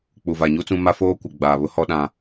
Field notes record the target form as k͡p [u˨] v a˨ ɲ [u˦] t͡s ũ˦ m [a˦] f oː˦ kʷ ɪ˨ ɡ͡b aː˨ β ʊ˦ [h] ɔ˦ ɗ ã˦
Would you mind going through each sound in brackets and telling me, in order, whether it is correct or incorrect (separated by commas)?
correct, correct, correct, correct